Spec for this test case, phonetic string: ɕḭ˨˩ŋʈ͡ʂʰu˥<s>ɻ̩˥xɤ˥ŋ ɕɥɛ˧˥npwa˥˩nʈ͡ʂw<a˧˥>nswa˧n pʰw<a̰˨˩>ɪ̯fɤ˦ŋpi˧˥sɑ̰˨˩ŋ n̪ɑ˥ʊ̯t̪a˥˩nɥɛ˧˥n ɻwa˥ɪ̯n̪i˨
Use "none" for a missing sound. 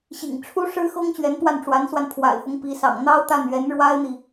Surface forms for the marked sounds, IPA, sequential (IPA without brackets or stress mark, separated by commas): ʂ, a˧˥, a̰˨˩